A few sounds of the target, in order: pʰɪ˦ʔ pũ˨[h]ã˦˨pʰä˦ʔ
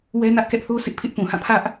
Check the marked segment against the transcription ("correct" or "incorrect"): correct